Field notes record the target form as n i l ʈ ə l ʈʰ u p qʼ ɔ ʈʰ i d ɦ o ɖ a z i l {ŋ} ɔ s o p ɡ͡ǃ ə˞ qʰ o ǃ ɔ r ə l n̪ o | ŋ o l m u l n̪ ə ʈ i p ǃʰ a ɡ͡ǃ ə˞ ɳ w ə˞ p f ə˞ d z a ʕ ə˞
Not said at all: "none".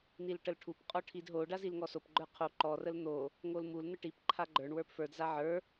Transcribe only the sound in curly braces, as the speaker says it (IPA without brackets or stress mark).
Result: ŋ